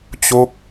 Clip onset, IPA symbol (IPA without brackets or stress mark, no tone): t͡ɕ